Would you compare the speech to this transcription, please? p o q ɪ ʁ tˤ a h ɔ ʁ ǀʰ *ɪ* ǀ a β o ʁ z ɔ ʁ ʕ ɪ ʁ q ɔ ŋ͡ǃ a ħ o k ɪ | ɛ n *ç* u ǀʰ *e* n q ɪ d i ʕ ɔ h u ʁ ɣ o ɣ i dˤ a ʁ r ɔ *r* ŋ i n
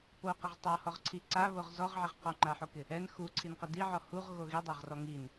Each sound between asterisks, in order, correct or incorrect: incorrect, incorrect, incorrect, incorrect

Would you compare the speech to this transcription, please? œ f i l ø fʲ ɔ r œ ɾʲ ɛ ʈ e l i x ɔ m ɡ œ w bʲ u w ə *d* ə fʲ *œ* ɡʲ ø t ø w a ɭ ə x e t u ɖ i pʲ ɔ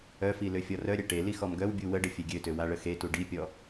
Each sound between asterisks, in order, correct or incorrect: incorrect, incorrect

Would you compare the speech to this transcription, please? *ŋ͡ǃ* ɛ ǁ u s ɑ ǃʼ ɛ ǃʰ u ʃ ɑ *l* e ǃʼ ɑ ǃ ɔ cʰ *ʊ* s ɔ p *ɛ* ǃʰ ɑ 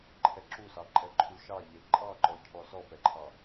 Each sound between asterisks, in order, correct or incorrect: incorrect, incorrect, incorrect, correct

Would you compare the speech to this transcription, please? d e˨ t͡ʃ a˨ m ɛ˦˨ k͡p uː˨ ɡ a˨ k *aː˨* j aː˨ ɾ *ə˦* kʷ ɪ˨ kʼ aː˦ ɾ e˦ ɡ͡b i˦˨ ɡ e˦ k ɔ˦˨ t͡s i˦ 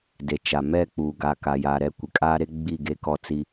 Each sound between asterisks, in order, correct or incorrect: incorrect, incorrect

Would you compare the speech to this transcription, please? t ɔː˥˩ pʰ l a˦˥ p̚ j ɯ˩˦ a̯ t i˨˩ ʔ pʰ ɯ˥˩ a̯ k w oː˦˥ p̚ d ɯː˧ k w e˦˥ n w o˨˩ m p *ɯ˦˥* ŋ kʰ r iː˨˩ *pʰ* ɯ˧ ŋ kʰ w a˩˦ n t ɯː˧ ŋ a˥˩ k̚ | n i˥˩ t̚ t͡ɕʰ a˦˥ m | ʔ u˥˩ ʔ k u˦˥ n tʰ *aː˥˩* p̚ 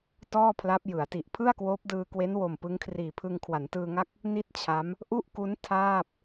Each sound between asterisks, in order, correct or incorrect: correct, correct, correct

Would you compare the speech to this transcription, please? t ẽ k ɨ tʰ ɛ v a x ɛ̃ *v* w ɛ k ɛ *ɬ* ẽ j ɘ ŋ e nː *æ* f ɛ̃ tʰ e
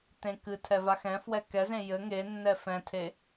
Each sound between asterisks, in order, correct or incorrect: incorrect, incorrect, incorrect

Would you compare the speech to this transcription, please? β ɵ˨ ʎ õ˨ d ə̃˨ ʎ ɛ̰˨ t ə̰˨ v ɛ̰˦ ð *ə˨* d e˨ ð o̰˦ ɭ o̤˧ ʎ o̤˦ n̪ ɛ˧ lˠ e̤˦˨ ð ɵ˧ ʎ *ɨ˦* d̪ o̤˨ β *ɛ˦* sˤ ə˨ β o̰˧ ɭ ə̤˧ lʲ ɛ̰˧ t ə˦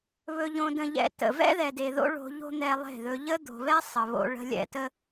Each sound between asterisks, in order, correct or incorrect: incorrect, incorrect, correct

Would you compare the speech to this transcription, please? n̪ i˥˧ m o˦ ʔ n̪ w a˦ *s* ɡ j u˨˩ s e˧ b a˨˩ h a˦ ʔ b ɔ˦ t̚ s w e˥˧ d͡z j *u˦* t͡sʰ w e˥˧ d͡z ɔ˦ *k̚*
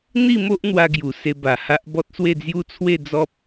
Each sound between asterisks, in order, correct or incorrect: incorrect, incorrect, incorrect

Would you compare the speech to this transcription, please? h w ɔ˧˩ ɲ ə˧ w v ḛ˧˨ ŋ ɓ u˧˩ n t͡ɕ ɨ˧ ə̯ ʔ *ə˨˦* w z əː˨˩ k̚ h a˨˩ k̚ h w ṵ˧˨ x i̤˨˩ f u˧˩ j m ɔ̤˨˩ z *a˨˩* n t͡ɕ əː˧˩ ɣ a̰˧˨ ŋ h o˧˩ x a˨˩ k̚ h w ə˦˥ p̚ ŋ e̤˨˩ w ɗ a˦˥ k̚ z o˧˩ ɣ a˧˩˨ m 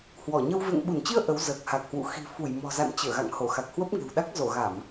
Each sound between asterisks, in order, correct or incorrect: correct, incorrect

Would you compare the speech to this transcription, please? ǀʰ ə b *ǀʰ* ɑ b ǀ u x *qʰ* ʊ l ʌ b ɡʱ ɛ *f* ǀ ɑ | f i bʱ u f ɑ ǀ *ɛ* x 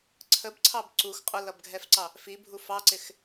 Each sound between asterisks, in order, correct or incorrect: correct, incorrect, correct, incorrect

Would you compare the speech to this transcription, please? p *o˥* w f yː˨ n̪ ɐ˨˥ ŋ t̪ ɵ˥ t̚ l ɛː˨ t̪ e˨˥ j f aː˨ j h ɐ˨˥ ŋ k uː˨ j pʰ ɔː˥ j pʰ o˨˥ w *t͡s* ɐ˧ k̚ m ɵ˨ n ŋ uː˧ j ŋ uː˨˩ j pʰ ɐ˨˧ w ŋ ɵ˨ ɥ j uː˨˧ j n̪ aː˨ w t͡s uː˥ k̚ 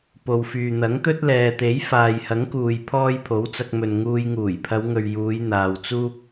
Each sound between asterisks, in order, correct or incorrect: incorrect, correct

